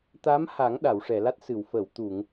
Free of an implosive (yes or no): no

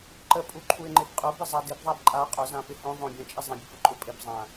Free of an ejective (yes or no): no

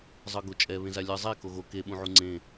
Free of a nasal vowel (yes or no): no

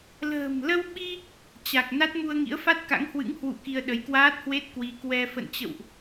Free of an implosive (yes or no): no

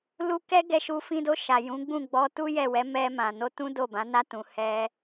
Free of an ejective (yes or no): yes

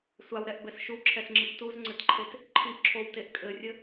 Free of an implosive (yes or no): yes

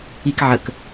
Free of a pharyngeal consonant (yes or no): no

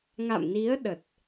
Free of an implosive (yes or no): no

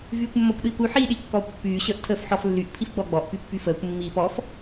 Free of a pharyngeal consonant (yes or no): no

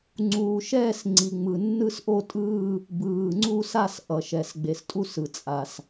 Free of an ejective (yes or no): no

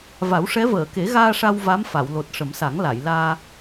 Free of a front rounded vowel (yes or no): yes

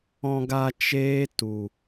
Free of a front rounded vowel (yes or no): yes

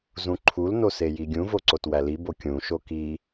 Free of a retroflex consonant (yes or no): yes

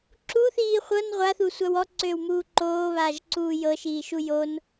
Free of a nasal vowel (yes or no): yes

